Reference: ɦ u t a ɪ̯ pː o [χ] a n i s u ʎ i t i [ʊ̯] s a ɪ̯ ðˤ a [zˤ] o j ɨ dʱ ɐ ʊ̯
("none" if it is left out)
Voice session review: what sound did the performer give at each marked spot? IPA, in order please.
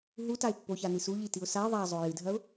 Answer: ç, ʊ̯, zˤ

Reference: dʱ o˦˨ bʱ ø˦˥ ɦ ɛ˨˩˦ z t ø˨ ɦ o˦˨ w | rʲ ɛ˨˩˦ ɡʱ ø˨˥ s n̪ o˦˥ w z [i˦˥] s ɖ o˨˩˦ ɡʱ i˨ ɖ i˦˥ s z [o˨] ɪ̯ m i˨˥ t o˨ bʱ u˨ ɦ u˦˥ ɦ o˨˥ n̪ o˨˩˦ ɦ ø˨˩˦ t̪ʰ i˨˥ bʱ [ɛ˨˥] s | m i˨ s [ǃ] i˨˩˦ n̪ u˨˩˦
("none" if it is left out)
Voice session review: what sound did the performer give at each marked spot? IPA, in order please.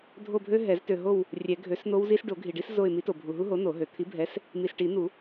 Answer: i˦˥, o˦˨, ɛ˨˥, ʈ

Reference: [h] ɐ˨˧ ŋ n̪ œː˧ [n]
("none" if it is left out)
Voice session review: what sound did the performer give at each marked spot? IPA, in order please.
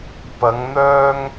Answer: p, ŋ

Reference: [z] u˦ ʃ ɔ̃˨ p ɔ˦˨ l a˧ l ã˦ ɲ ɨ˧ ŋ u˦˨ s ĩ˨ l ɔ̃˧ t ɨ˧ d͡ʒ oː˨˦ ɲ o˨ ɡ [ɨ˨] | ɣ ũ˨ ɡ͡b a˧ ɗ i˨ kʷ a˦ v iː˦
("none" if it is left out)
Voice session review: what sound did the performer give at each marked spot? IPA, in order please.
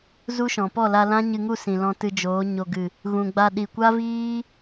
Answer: z, ɨ˨

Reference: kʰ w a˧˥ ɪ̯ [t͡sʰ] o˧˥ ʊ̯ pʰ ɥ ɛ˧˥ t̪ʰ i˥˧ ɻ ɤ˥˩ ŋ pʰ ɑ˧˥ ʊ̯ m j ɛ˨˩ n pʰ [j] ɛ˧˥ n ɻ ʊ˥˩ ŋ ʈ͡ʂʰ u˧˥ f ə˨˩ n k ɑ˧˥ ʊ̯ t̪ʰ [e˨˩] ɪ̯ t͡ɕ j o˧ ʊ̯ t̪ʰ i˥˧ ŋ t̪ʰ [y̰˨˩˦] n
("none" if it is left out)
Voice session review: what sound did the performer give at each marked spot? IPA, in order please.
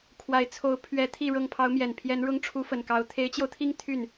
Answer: t͡sʰ, j, e˧˥, y˥˩

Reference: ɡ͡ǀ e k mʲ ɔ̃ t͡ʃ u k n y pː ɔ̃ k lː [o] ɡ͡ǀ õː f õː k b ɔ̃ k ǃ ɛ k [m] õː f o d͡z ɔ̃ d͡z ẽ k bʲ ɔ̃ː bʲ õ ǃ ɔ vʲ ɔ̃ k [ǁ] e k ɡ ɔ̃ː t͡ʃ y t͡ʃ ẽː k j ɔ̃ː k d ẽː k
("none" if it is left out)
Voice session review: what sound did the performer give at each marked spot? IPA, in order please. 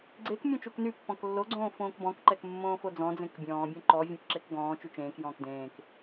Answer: o, mː, ǁ

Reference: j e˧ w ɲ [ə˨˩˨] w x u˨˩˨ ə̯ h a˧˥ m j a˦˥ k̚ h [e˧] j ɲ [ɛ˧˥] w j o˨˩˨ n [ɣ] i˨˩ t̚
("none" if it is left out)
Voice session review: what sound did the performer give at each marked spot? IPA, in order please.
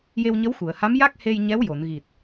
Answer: ə˧˥, e˧, ɛ˧˥, ɣ

